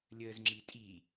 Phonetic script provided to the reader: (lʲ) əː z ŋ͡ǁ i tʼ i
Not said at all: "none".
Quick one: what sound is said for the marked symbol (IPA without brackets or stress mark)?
lʲ